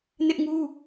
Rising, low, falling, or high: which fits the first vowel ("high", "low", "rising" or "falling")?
high